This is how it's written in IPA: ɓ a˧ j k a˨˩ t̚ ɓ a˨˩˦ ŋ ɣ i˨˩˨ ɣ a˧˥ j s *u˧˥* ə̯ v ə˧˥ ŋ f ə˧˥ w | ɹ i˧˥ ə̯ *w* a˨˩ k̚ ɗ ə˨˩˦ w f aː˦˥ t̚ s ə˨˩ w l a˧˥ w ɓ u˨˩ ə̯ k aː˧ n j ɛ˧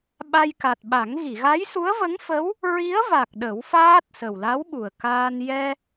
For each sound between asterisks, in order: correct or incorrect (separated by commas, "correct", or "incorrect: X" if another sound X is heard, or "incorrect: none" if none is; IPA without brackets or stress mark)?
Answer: correct, incorrect: v